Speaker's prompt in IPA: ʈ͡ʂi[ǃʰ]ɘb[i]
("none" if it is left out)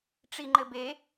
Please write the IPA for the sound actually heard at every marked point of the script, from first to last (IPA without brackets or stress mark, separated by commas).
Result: ŋ͡ǃ, e